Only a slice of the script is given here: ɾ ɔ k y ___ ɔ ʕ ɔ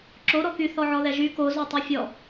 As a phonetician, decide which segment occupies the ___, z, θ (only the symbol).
θ